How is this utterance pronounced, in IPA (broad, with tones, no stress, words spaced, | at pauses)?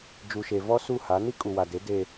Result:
d͡ʒu˨ʃe˨ vɔ˦ su˦˨ha˨˦ ni˦kʼu˨wa˨de˨˦ de˦